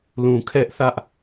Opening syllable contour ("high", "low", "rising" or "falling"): low